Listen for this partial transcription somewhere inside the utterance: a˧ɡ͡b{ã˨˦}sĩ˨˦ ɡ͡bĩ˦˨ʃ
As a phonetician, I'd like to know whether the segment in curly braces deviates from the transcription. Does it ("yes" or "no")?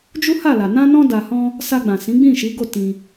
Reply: yes